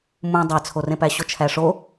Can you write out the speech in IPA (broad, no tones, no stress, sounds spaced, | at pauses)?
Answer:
m ũ dˤ æ t͡sʰ o r ẽ p æ ɕ o t͡ʃʰ æ ʂ o